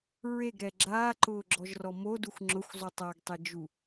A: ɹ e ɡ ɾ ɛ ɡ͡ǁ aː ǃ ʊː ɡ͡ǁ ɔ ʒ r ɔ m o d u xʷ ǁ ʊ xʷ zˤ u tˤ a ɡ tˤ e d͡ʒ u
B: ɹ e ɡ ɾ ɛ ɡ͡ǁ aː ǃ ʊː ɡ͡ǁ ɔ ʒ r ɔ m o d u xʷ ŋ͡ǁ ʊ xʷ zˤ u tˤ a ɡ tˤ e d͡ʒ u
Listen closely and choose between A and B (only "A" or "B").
B